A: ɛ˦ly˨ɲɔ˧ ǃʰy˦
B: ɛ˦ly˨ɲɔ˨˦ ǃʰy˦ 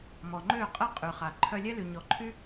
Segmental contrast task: B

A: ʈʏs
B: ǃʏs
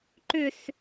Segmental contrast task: B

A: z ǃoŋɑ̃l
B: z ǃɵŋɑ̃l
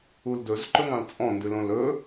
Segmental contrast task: B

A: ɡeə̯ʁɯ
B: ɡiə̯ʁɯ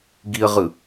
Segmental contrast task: B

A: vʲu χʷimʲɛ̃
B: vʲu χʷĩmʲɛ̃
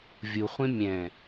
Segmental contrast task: B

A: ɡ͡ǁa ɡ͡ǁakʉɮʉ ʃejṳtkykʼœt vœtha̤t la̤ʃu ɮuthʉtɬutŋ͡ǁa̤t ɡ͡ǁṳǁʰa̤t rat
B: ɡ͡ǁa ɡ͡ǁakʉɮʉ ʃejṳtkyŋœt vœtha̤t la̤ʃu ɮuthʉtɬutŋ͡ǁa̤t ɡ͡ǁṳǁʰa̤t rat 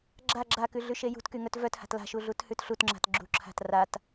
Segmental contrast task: B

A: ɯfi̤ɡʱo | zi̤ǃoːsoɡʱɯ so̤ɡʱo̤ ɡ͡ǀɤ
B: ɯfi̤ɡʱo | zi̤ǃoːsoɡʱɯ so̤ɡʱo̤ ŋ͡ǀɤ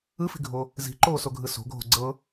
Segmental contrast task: A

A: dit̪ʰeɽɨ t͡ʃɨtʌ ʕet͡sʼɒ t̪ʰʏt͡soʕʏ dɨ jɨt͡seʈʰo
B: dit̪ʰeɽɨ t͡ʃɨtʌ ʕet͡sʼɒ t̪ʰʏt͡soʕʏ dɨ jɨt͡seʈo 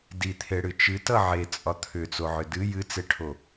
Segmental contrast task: A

